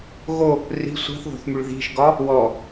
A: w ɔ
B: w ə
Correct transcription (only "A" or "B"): A